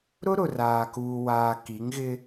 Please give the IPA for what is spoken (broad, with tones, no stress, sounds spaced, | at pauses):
ɾ ʊ˦ ɾ ʊ˨ r aː˨ k uː˨ w aː˨ k i˨˦ ŋ ɣ ɪ˦